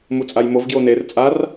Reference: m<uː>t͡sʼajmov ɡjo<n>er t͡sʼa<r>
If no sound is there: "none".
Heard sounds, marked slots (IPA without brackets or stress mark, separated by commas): u, n, r